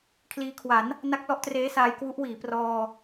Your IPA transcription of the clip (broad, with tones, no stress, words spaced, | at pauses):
kʰliː˧kʰwa˩˦n | na˦˥k̚lɔ˦˥ʔtreː˦˥saː˧j kwu˦˥ʔ wiː˩˦prɔː˧